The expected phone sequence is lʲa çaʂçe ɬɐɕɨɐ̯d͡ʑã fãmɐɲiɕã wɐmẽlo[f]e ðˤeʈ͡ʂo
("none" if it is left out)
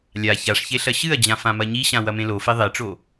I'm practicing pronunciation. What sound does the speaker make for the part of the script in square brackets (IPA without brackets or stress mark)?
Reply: f